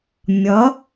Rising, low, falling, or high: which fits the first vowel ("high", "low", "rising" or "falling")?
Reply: rising